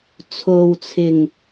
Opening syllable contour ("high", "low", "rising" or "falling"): low